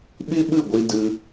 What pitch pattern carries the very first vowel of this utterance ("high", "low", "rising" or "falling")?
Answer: high